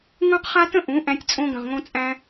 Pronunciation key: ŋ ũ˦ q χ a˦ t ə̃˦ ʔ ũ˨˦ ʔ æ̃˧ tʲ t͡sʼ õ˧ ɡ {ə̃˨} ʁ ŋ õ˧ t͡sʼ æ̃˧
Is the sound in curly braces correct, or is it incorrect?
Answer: correct